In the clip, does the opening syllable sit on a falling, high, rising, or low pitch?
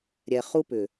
low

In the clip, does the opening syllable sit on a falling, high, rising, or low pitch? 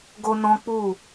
high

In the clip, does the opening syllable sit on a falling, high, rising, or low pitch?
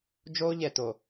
high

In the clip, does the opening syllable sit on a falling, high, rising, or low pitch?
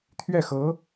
falling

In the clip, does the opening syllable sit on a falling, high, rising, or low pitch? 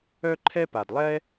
high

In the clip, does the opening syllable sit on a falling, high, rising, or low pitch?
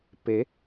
rising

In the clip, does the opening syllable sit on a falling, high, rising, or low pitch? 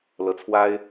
rising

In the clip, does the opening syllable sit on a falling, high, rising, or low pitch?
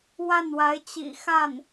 falling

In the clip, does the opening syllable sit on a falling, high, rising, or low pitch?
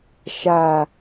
low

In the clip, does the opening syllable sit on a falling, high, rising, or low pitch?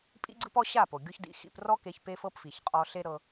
high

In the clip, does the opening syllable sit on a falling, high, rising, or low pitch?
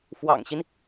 low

